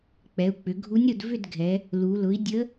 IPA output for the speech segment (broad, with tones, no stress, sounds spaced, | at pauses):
k͡p ɛ˩˧ u̯ k͡p ʏ˩˧ ɡʱ u˧˥ nʲ ɾ ʊ˦˨ d v ʏ˦˨ d ɡʱ ɛ˩˧ | l u˩˧ l ʊ˩˥ i̯ dʲ ə˧˥